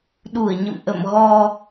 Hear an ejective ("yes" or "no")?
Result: no